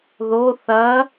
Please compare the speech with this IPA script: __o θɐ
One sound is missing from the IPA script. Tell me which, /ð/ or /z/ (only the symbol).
ð